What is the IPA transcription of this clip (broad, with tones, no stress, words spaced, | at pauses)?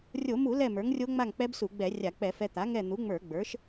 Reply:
rʲo˧˩˧mu˧˩˧ lɛ˥˨mə˞˩˥ŋrʲo˦˥ŋ͡ma˥˨ŋ k͡pɛ˦˥bsu˧˩˧ɡ͡bɛ˧˩˧rʲa˧˩˧ k͡pɛ˧˩˧fɛ˧ t̪a˩˥ ŋɛ˥˨ n̪u˩˥ŋ͡mə˞˧˩˧ɡ͡bə˞˩˥ʃ